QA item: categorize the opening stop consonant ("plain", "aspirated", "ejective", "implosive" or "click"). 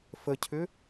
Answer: aspirated